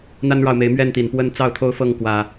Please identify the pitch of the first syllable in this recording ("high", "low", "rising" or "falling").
high